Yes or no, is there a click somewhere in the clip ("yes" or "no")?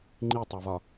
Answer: yes